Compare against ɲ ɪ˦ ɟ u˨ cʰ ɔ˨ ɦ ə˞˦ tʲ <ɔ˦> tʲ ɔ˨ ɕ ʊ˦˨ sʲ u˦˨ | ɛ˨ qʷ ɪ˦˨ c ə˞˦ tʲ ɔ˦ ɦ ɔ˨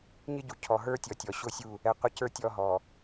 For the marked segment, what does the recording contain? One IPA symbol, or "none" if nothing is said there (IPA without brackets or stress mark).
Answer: ɔ˨